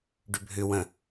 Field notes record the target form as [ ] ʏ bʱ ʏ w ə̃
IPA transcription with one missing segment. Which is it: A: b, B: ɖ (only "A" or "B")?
B